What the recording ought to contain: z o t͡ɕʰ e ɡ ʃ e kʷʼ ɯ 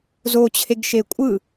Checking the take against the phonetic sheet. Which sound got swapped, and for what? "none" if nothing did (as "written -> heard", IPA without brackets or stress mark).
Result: none